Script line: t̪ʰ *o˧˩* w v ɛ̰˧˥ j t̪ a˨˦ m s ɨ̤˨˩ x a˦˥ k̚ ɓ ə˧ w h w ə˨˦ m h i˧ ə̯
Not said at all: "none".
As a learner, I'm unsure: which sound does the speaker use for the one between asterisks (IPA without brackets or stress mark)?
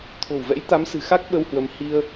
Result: o̤˨˩